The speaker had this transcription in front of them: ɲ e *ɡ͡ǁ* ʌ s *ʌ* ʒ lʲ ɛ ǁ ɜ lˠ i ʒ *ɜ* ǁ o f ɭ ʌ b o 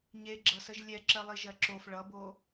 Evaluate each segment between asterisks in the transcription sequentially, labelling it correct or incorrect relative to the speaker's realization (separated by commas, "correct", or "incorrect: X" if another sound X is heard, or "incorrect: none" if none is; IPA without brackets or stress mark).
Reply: correct, incorrect: ə, correct